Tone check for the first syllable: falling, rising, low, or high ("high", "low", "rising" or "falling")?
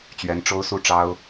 rising